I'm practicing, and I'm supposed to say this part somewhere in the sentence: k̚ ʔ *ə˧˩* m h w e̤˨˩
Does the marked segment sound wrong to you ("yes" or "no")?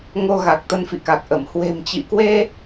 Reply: no